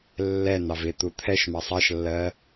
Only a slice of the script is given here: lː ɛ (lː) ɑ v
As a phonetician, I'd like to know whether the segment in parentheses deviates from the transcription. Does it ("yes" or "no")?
yes